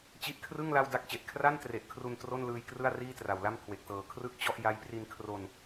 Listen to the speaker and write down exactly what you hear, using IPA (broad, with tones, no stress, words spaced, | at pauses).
t͡ɕi˦˥ʔkʰrɯ˥˩ŋ la˥˩wda˥˩k̚t͡ɕe˨˩ʔ kʰra˥˩ntre˨˩ʔkʰru˧n tro˥˩nlɯː˧j krɯ˥˩a̯riː˥˩tra˨˩wla˥˩m kʰwe˨˩k̚tɤː˨˩ kʰrɯ˥˩k̚ t͡ɕɔ˥˩ʔ ja˦˥j pri˧nkʰro˧n